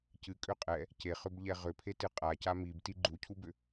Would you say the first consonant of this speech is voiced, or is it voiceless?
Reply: voiceless